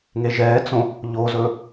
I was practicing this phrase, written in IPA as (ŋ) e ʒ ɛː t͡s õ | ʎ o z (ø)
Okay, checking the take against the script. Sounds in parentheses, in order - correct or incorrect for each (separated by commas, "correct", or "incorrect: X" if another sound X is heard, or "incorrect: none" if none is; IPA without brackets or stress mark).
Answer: correct, incorrect: ɵ